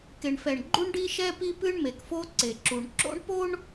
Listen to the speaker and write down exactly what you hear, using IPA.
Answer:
k e˨ ɳ f ɛ˨ ɳ ɡ͡ǃ u˦ ɳ ɖ i˦ ʃ ɛ˦ p i˦ p ɨ˦ ɳ m e˨ k f o˦ ǀ e˨ ǁ u˨ ɳ ǁ o̰˦ ɳ p o˦ ɳ

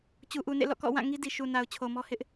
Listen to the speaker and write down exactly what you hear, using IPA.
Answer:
t͡ɕ u˨ ʔ u˨ n ḛ˦˨ l ɔ̰˦˨ k ɔ̰˦˨ w ã˦˨ ŋ i˦ d i˨ ʃ u˨ n a˨ ʊ̯ t͡ɕʰ o˨ m ɔ˦ h ɪ˦ ʔ

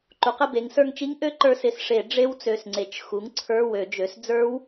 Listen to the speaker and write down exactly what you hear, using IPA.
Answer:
ǃ u˩˥ q ɪ˩˧˩ b e˩˥ ŋ s ə˞˧ ŋ t͡ʃ i˦˥ ŋ ʔ ø˦˥ ǃ ə˞˧ s ɪ˨˩˦ s ʂ e˨˩˦ ɖ͡ʐ e˦˥ w t͡s ø˩˧˩ s ŋ͡ǀ e˩˥ t͡ʃ x u˩˥ ŋ ǀʰ ə˞˧˥˧ w ø˨˩˦ d͡ʒ ø˩˥ s d͡z ə˞˦˥ w

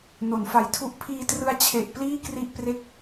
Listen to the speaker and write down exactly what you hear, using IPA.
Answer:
n o˩˦ n f a˨˩ j tʰ u˦˥ ʔ pʰ iː˧ t r ɯ˧ a̯ t͡ɕʰ e˨˩ ʔ p l iː˥˩ k r i˥˩ ʔ p r e˥˩ k̚

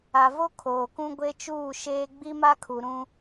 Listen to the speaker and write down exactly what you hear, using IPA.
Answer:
a˨ v o˦ kʰ oː˨ k ũ˦ ɡʷ e˦ t͡ʃ uː˦˨ ʃ eː˦ ɡ͡b i˦ m a˦ kʰ u˨ ɾ ũ˦

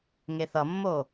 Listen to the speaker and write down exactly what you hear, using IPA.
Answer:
ŋ e θ ʌ mː o

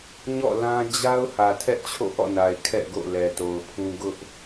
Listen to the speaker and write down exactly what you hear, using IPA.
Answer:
ɲ ɔ̰˦˨ l ã˦ d͡ʑ a˦ ʊ̯ h ä˨ tʰ ɛ˦ ʔ t͡ɕʰ o̰˦˨ ʔ ɔ̰˦˨ n a˨ ɪ̯ kʰ ɛ̰˦˨ ɡ o̰˦˨ l ɛ˨ t o˨ ʊ̯ pʰ ũ˦ ɡ ʊ˦ ʔ

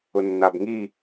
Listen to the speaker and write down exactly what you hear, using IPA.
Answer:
ʊ nː a b ŋ i

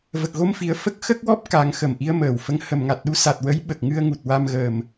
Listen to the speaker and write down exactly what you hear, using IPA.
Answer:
v ə˨˩ k̚ ɣ o˧ m f i˨˩ ə̯ f ə˦˥ k̚ x ə˦˥ k̚ w ɔ˦˥ p̚ k a˨˩˦ ŋ x ə˨˩˨ m ʔ i˧˥ ə̯ m əː˨˩ w f ə˧˥ ŋ h ə˨˩˨ m ŋ a˨˩ t̚ ɗ u˧˥ s a˨˩ t̚ w ə˧˥ j ɓ ə˨˩ k̚ ŋ ɨ˧ ə̯ ŋ u˨˩ t̚ w a˧ m ɣ əː˨˩ m

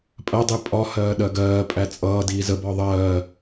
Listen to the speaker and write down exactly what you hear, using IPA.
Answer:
pʼ ɜ dˤ i pʼ ɒ h ɜː ɗ ɜ ɡ ɜː pʼ æ t͡sʼ ʌː d iː z ə b ɒ ðˤ ɜː

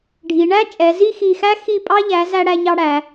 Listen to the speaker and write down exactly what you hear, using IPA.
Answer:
ɖʱ i˩˧ ɳ æ˥ t͡ʃʼ ɛ˩˧ z i˥˧ x i˧˩ x æ˥ x i˧˩ pʼ ɑ˧ ʎ æ˩˧ z æ˧ ɽ æ˧ ɲ ɑ˧ ɽ æ˩˧

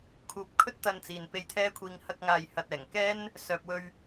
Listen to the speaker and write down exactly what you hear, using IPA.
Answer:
kʰ uː˨˥ p̚ kʰ ɵ˥ t̚ t̪ ɐ˧ n t͡s iː˨ n p e˧ j t̪ʰ ɛː˥ kʷʰ iː˧ ŋ h ɐ˧ k̚ ŋ aː˨ j h ɐ˨ t̚ ɛː˨˩ ŋ k ɛː˥ n | s œː˨ p̚ w ɵ˧ ɥ

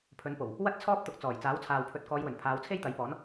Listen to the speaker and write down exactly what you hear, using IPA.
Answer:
pʰ ɵ˨˥ n p o˨˩ w | w ɐ˥ t̚ t͡sʰ ɔː˥ p̚ t̪ ʊ˨ k̚ t͡s ɔː˨˩ j t͡s aː˨˥ w t͡sʰ aː˨ w pʰ ɵ˨˥ t̚ k ɔː˨˧ j w ɵ˨˩ n pʰ aː˨˧ w t͡sʰ e˥ j t̪ ɐ˨˥ j p ɔː˨˥ n

